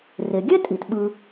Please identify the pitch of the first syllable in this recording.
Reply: low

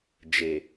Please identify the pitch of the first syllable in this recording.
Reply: low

